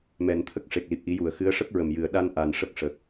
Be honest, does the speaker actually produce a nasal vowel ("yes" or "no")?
no